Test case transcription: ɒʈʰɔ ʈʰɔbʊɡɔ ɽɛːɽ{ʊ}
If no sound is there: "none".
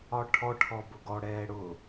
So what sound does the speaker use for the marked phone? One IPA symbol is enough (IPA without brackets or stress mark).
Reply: ʊ